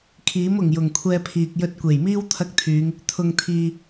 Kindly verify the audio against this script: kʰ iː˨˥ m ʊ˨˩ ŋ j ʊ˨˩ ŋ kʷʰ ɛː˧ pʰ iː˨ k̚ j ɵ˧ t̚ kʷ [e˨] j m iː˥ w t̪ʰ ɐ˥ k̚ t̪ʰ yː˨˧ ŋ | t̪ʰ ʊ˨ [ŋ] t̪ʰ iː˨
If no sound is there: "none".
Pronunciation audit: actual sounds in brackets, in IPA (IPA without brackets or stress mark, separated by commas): e˨˩, ŋ